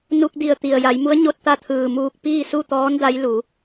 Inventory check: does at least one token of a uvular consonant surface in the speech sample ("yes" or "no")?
no